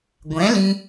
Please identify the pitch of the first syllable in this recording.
rising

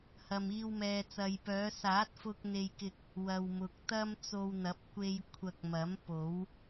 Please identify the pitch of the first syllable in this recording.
low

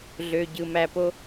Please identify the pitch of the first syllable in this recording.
low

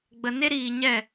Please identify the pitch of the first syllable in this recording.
low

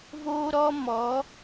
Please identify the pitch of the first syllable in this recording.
high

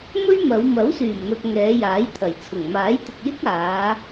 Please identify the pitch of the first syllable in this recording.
high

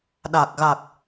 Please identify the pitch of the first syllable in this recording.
low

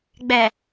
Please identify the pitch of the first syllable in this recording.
low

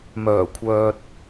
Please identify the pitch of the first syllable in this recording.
low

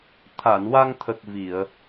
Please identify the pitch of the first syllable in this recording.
low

